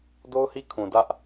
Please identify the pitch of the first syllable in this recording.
high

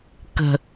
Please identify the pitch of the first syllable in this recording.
low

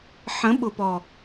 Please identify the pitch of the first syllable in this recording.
rising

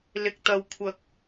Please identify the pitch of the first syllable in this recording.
low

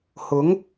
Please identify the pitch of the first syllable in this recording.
rising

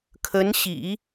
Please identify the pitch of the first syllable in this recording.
rising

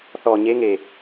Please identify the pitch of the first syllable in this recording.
low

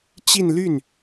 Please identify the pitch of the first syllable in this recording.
falling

